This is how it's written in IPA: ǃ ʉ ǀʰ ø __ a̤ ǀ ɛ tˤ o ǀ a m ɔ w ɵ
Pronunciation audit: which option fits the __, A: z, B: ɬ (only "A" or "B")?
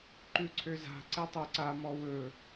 A